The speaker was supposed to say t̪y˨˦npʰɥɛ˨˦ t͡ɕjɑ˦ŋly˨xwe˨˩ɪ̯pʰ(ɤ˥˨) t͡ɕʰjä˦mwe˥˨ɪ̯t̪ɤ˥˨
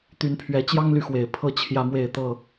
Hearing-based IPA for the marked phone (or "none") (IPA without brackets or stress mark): ɤ˥˨